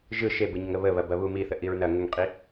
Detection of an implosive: absent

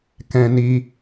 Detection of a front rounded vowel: absent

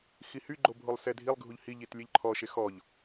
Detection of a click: present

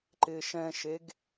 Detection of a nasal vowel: present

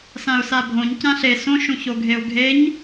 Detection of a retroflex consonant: absent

